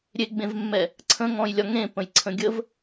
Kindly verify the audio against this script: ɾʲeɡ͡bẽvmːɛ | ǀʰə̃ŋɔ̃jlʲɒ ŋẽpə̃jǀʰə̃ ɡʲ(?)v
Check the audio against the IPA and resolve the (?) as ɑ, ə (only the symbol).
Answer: ə